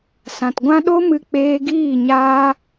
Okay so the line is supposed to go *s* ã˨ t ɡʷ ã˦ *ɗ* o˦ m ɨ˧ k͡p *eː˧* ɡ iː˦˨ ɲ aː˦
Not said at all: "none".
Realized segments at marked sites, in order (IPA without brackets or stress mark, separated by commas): s, ɗ, eː˧